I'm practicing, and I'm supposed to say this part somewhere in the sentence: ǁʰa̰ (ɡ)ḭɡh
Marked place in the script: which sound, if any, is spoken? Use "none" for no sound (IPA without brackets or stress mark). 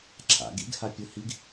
ɡ